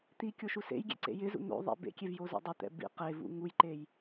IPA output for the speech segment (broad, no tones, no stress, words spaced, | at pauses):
t̪i kʲoʃusḛjɡʲḛ ǀḛjɪzṵ n̪o̰ ðˤḛbḛkʲev jozo̰dˤʊt̪ɛ̰ bḭ qevṵ ŋujǃej